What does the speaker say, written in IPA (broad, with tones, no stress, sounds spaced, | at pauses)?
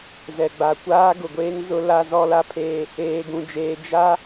z ɛ˨ ɡ͡b a˨ kʷ aː˦ ɡ ʊ˨ ɡʷ eː˦ ŋ z ʊ˦ l a˦ z ɔ˦ l a˦ pʰ eː˦ | eː˦ ɡ ũ˦ d͡ʒ eː˦ d͡ʒ a˦